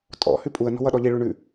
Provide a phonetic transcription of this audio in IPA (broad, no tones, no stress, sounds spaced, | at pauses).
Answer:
tʼ ɔ̰ h ʉ pʼ u ə̯ n ɔ̤ w ʌ ɗ ɔ ʎ i ɭ ʉ ɳ ʉ